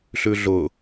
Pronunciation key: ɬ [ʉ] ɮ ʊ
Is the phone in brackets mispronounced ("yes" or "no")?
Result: no